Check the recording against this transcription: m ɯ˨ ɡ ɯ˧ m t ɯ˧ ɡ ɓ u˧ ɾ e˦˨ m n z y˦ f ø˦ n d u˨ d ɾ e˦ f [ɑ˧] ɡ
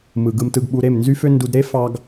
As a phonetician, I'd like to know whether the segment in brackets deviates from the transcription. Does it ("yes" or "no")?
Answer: no